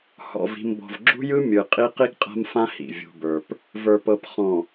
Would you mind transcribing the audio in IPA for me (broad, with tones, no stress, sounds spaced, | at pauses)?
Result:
h ɔ̰˨ v i̤˨ m b ɔ̤˨ v ɡ͡ǁ ṳ˦ j ɯ˦ mʲ ɯ˨ qʼ i˦ q i˦ ɡ qʼ a̤˦ m f ã˦ h ḭ˨ vʲ ṳ˨ b ə˞˨ p | v ə˞˨ p ɤ˨ p χ ɔ̃˨